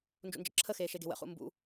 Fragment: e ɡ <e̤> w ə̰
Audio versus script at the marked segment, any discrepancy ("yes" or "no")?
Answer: no